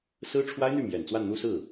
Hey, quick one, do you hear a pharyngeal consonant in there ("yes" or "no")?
no